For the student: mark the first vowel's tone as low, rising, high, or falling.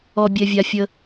low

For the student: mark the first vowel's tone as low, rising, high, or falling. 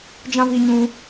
high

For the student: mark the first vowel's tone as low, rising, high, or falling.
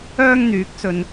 high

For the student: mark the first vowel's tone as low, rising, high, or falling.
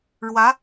rising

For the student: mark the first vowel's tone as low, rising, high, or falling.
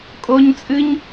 high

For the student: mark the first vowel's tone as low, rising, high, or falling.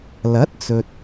rising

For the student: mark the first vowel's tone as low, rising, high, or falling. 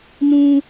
high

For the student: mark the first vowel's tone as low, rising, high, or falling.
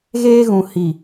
high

